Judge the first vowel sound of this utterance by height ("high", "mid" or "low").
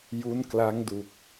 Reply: high